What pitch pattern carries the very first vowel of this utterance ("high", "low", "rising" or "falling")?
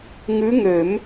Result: rising